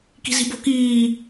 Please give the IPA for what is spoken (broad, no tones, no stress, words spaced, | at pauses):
ki̤zi̤bo̤ kiː